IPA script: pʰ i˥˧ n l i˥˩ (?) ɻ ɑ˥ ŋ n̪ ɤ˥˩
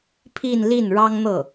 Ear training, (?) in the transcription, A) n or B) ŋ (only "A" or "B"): A